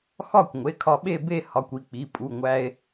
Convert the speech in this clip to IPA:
x ɒ˥˧ kʷ ŋʷ e˩˧˩ kʰ ɒ˧ ɓ e˥˧ b e˥˧ h ɒ˩˧˩ kʷ i˧ k͡p i˩˧˩ pʼ u˩˧˩ ŋʷ æ˧ e̯

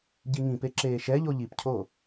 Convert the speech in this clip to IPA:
ɟ i ŋ ĩ p e ǁ eː ʃ ɛ ʎ o ʎ i p cʰ oː

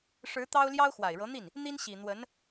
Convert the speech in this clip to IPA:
ʂ ɻ̩˧˥ t̪ ɑ˥ ʊ̯ l j ɑ˥ ʊ̯ x w a˨˩ ɪ̯ ɻ ɤ˧˥ n̪ i˥˩ n | n̪ i˥ n ɕ i˨˩ n̪ w ə˧˥ n

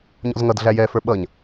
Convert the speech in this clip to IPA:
ɲ ɔ̰ z ŋ ʌ d ɮ æ j ɛ f ə˞ ɓ ʌ ɲ

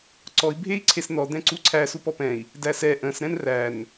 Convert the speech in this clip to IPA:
ǀ ɔ i̯ bʱ e i̯ ǀʰ e s n ɔ d̪ ɛ̃ ǀ u ǀʰ æ s u p ɔ p ɛ̃ i̯ | d æ s ɛ ʔ ə̃ s ɾ ɛ̃ n r æ n

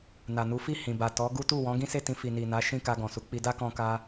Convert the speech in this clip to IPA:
n a˨ n u˨˦ f i˦˨ h ĩ˨ b a˨ t ɔ˨˦ ɡ u˦ t u˦˨ w ɔ̃˨˦ ɡ ĩ˦ s e˦˨ t ĩ˧ f i˨ n i˨ n a˨˦ ʃ ĩ˦˨ k a˧ ɡ ɔ̃˨ s u˨˦ k͡p i˧ d a˦ k ɔ̃˧ k a˧

